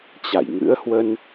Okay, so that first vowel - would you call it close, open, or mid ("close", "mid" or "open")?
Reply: open